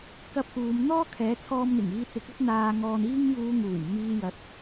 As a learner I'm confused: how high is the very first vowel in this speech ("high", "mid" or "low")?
low